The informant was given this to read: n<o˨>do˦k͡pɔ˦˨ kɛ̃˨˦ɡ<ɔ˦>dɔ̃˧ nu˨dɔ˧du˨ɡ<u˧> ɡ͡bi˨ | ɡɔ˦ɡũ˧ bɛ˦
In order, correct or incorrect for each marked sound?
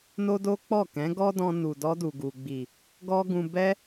incorrect: o˦, correct, incorrect: u˨

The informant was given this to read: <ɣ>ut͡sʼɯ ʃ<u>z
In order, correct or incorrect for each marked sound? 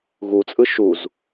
correct, correct

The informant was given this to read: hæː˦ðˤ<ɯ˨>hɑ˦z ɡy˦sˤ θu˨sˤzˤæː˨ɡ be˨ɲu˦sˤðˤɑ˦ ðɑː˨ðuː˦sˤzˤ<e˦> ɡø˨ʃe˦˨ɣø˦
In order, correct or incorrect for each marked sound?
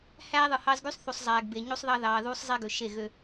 correct, correct

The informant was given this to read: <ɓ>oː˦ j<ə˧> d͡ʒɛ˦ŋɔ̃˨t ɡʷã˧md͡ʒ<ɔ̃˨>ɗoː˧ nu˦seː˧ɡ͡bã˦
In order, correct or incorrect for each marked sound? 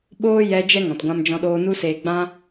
correct, incorrect: ɛ˧, incorrect: ɔ̃˧

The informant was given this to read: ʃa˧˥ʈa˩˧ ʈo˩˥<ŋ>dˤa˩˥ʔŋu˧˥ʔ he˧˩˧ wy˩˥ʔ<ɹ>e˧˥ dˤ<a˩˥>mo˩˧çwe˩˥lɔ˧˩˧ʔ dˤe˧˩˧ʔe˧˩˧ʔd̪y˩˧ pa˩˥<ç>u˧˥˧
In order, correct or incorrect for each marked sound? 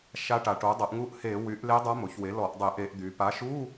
incorrect: none, incorrect: l, incorrect: a˧˥, incorrect: ʃ

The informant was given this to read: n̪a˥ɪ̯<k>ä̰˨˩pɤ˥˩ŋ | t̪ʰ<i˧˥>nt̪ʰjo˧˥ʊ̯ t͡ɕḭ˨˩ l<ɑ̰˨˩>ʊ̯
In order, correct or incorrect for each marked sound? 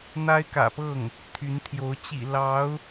correct, incorrect: y˧˥, incorrect: ɑ˧˥

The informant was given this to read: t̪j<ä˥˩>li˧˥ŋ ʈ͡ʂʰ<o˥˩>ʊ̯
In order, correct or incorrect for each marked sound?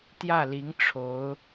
correct, incorrect: o˧˥

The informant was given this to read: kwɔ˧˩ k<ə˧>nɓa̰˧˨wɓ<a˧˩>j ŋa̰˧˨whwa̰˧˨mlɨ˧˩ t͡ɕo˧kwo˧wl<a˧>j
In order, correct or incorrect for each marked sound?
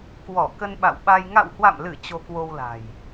correct, incorrect: a˧, incorrect: a̤˨˩

